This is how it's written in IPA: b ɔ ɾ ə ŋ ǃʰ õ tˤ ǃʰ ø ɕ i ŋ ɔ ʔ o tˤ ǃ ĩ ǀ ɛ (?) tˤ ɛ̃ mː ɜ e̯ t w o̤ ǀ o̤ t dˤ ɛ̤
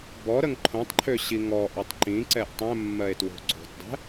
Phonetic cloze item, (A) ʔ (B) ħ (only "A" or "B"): A